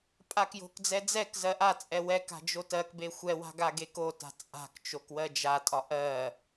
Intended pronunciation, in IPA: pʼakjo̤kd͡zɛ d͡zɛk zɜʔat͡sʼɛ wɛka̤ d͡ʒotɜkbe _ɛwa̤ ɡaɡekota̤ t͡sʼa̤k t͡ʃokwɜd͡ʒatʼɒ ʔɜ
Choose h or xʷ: xʷ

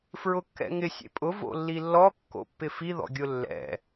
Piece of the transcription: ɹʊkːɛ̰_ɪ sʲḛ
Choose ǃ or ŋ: ŋ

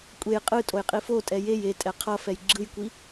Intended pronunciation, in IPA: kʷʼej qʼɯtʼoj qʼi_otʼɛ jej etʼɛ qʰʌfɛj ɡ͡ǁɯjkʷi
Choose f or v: f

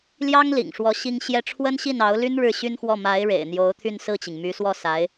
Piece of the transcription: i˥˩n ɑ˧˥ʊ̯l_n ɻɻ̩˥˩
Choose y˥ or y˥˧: y˥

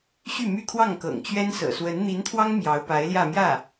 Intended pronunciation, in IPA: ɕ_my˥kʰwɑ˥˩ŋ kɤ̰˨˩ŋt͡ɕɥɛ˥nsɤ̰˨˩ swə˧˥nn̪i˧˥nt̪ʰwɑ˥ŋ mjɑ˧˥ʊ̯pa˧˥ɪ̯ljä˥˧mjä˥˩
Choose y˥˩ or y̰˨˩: y˥˩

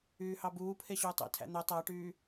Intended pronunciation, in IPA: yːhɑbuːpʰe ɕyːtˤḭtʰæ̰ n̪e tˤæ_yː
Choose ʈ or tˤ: ʈ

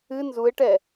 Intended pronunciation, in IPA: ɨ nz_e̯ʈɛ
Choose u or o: u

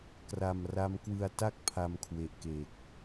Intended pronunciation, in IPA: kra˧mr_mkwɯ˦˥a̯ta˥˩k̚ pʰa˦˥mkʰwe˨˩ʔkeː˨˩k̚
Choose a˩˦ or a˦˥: a˦˥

